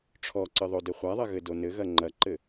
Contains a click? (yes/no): yes